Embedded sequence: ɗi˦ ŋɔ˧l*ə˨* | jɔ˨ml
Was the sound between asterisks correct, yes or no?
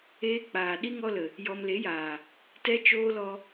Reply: yes